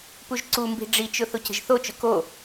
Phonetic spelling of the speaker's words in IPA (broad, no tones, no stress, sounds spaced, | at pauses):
p u ʒ ǀ u m b i̤ ɖ͡ʐ i t͡ʃ ʊ θ o c ə̤ ʒ θ o t͡ʃ ʊ k o